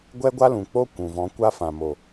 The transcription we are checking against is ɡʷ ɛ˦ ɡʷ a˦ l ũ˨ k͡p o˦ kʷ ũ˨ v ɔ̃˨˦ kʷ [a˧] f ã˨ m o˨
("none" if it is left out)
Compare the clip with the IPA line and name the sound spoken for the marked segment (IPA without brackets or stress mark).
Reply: a˦